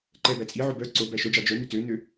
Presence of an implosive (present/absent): absent